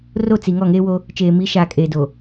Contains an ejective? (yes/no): yes